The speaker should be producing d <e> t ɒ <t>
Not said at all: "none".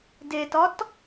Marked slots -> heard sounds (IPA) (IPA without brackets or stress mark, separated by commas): e, t